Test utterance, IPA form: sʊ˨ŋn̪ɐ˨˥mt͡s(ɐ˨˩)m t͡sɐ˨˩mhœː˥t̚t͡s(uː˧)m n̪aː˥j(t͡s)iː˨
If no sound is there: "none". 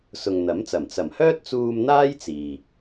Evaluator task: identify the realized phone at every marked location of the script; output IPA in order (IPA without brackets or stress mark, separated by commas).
ɐ˨˩, uː˧, t͡s